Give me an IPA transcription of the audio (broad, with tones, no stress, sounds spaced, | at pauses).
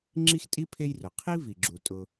ŋ͡ǁ i˥ x tʼ i˥ pʰ e˦ j r ʊ˩ qʰ i˥ v i˩ ɡ͡ǁ u˩ tʼ ʊ˨